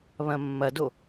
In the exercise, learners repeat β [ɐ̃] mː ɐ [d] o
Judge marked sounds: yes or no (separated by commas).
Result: yes, yes